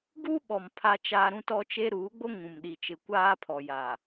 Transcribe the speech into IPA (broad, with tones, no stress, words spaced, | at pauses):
ɡu˦ɓɔ˨m pʰa˦t͡ʃaː˦ ɾũ˦tɔ˦t͡ʃe˦ ɾuː˨˦ɡ͡bo˦ ŋũ˨mɗi˨t͡ʃɪ˨ kʷaː˦pʰɔ˨jaː˨